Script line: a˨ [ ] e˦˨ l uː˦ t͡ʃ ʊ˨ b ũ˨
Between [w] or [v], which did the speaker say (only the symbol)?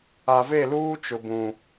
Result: v